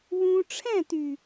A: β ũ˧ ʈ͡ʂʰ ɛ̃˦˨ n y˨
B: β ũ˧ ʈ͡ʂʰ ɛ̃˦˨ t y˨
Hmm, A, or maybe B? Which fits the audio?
B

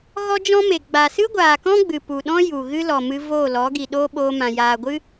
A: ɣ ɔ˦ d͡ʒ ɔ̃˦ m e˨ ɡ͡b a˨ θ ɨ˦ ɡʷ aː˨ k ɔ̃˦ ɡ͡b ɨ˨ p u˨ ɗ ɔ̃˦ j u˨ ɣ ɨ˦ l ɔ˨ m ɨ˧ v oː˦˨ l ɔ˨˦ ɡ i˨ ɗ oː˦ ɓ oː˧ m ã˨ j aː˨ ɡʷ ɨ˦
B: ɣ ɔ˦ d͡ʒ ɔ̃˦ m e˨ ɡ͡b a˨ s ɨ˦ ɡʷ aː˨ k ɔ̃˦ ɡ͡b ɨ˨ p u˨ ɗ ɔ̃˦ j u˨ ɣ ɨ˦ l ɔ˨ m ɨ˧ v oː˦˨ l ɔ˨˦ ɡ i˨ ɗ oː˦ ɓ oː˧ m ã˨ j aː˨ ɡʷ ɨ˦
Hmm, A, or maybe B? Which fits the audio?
B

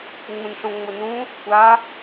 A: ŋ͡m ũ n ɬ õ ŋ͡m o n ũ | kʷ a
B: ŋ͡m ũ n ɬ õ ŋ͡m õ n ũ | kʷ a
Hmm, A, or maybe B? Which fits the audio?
A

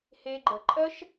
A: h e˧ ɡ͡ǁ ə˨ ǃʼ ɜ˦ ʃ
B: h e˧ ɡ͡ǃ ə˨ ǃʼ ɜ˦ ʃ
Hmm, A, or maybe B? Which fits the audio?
B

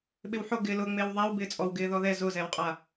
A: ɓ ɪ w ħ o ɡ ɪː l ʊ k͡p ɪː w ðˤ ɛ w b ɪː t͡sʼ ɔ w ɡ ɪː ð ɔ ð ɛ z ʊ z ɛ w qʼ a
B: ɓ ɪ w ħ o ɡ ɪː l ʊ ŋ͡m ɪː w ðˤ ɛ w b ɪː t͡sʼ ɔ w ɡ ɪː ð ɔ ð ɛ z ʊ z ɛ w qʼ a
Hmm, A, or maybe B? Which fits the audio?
B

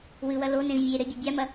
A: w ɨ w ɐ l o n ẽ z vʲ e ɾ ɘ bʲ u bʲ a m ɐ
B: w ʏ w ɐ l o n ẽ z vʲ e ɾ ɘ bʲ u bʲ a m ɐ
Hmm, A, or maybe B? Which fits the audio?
A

